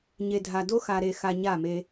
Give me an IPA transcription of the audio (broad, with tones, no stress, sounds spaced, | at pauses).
ɲ e˨ dʱ a˨ d o˦ x a˨ ɾ e˨ x a˧ ɲ a˦˨ m e˧